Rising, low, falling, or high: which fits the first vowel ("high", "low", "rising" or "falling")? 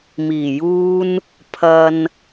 low